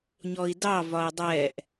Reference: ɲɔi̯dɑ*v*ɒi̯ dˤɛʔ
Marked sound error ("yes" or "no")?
no